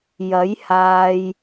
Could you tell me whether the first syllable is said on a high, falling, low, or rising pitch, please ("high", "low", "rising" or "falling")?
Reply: rising